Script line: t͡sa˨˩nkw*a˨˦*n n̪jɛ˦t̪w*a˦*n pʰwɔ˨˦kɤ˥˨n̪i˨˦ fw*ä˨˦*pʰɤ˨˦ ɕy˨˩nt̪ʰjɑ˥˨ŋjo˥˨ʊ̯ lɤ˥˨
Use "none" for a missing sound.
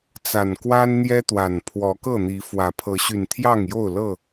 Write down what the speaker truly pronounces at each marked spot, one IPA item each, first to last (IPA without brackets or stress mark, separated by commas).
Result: a˦, a˨˩, ä˨˦